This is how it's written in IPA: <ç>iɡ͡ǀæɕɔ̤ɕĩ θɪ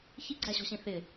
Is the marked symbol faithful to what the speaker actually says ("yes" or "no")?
yes